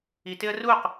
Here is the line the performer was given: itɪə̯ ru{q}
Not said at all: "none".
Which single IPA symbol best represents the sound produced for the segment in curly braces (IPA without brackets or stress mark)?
q